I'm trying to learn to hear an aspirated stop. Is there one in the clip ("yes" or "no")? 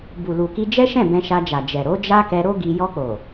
no